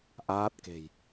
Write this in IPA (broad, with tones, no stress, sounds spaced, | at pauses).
ʔ aː˦˥ t̚ k e̤˨˩ j